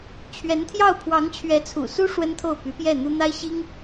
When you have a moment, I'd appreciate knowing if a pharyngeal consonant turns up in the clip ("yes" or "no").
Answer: no